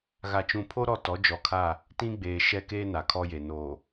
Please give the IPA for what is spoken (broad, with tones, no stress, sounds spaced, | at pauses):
ɣ a˨ t͡ʃ ũ˨ pʰ o˦ ɾ ɔ˦˨ t ɔ˨˦ d͡ʒ ɔ˨ kʰ a˦˨ | t ĩ˦ ɡ͡b eː˨ ʃ ɛ˦ k eː˦ n a˨ kʰ ɔ˦ j e˨ n oː˨